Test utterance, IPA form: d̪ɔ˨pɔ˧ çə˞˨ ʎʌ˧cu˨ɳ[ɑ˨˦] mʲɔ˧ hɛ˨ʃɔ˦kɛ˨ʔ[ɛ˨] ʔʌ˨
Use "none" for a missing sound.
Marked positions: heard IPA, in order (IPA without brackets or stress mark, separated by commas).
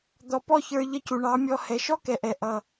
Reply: ɑ˨˦, ɛ˨